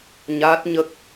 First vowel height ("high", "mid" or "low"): low